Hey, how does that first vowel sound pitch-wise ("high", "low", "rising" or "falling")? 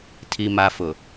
low